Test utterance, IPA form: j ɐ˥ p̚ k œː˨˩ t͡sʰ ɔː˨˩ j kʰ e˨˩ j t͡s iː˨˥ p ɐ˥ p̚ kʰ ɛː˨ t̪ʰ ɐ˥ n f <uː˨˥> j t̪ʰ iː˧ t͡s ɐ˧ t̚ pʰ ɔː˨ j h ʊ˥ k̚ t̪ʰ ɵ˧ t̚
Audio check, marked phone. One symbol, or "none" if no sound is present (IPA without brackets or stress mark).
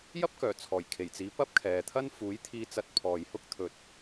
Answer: uː˨˥